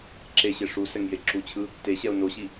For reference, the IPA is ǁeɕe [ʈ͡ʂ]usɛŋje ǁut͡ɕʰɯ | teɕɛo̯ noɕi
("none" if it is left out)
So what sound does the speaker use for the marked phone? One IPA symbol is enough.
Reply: ʂ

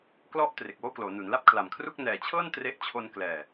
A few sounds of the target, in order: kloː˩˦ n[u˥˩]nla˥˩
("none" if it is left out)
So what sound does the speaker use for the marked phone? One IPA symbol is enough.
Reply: u˩˦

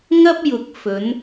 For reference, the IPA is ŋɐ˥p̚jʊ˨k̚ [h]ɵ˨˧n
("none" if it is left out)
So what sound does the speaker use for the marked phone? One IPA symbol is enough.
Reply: f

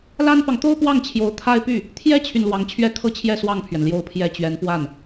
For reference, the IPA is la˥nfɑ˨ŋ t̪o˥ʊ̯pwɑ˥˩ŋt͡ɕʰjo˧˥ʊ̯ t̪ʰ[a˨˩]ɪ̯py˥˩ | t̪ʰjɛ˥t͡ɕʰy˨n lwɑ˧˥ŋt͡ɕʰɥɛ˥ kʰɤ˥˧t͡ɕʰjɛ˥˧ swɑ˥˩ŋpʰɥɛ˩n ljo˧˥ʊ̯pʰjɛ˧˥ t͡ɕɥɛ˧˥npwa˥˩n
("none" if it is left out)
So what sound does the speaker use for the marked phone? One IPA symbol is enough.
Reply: a˥˧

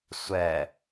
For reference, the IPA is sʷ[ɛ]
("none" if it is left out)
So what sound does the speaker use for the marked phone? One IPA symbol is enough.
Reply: ɛ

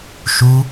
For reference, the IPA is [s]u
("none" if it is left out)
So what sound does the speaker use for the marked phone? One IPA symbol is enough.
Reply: ʃ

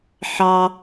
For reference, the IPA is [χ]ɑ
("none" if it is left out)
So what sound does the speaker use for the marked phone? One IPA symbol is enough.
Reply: ħ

